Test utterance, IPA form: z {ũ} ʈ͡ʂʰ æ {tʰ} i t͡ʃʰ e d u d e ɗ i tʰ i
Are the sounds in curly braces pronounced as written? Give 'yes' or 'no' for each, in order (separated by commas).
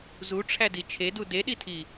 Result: no, no